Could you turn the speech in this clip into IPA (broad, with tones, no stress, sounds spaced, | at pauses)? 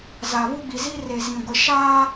z a˨ β uː˦ ɡ͡b i˨ z i˦ r e˨ z ĩ˨ ɡʷ ɪ˨ ʃ aː˦